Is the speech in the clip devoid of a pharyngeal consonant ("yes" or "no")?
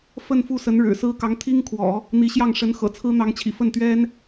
yes